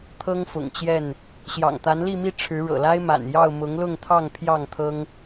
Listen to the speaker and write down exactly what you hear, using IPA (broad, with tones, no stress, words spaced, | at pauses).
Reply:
t̪ʰɤ˦ŋfʊ̰˨˩ŋt͡ɕjɛ˥˨n | ɕjɑ̰˨˩ŋt̪a˨˦nli˥˨mi˥˨ ʈ͡ʂʰɻ̩˨˦ɻɤ̰˨˩la˦ɪ̯ma̰˨˩n jɑ˥˨ʊ̯mʊ˨˦ŋlʊ˥˨ŋt̪ʰɑ˥˨ŋ pʰjɑ˥˨ŋt̪ʰɤ˦ŋ